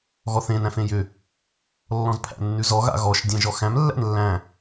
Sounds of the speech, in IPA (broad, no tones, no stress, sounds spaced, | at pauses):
ɣ ɔ θ ẽ n æ̃ f ẽ j ʏ | lː ɔ̃ z pʰ æ̰ nː ʉ z ɔ ɣ a̰ ɣ ɔ ʃ dʲ æ̃ ʒ ɔ x æ̃ m lː æ̰ n lː æ̃